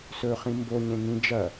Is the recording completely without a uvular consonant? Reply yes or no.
no